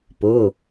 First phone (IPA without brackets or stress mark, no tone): p